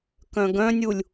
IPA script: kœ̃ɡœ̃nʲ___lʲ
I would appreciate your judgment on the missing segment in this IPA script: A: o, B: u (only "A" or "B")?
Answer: B